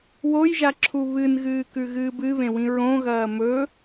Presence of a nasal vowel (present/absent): present